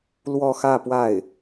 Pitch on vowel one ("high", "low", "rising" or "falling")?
falling